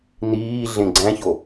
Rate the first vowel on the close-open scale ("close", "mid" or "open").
close